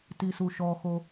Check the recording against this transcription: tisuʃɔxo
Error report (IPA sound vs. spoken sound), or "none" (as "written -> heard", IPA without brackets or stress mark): none